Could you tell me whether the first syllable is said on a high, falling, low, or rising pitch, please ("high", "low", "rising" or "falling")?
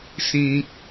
high